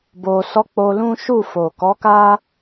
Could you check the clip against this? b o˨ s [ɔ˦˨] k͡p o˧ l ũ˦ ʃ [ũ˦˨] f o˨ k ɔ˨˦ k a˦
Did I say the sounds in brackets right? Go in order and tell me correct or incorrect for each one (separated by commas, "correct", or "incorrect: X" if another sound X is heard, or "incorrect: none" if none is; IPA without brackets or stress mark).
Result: incorrect: ɔ˧, incorrect: u˦˨